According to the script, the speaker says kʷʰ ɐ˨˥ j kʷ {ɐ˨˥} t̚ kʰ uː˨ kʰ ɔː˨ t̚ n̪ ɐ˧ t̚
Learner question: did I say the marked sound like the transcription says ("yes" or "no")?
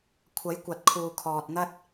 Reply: no